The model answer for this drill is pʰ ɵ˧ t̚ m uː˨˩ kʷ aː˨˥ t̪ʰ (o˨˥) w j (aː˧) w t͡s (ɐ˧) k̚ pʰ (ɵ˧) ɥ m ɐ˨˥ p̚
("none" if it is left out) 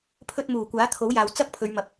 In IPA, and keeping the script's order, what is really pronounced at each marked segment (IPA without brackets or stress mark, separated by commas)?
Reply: o˨˥, aː˨, ɐ˥, ɵ˨˧